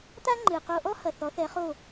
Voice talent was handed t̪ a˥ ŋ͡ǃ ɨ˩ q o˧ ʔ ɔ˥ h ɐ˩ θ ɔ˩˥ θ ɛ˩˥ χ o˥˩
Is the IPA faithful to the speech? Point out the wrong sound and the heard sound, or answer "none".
none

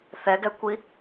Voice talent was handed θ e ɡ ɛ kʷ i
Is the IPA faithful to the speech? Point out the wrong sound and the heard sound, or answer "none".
e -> ɛ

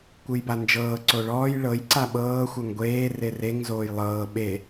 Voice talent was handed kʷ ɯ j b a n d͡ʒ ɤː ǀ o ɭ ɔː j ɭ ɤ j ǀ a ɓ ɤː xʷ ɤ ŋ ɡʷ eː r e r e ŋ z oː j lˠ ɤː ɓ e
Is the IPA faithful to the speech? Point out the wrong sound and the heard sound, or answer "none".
none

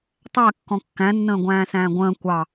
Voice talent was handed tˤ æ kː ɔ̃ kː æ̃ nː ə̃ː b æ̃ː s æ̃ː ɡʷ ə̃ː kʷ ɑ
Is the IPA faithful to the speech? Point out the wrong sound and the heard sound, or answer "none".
b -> ɡʷ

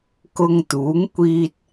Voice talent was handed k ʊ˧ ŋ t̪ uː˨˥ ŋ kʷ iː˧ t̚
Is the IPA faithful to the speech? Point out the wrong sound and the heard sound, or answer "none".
none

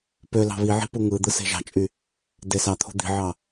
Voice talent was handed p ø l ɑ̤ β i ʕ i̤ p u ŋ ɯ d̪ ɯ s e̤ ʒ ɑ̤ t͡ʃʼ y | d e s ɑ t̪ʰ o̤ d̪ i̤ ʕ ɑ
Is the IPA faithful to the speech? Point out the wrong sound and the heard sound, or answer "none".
none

